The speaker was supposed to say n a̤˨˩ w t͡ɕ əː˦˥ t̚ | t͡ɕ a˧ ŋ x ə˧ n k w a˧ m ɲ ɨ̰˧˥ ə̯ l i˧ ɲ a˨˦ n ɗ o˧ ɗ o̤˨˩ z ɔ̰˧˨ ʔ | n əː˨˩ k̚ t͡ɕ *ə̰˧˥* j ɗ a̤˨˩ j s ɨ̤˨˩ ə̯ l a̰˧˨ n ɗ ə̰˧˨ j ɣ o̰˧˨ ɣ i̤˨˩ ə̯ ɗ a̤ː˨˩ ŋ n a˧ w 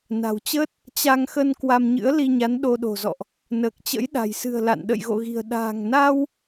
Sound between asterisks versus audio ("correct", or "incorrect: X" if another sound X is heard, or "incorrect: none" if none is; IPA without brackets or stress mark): correct